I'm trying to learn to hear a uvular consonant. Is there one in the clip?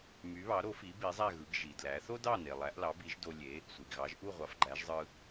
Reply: yes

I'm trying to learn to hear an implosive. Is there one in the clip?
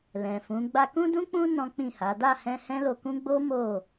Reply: no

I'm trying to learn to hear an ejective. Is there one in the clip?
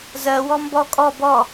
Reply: yes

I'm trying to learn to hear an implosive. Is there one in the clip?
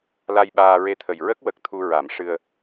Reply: yes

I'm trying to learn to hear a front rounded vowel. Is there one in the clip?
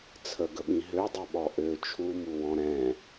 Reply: yes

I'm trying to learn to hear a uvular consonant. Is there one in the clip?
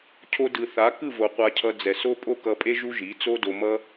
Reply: yes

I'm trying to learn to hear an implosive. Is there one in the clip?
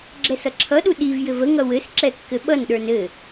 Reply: yes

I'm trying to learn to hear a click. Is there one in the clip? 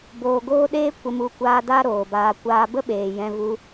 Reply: no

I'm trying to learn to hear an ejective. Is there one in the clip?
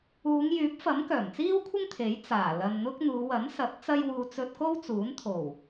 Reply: no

